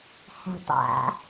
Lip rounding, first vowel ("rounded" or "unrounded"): unrounded